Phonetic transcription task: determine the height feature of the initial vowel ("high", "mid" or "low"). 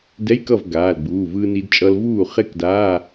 mid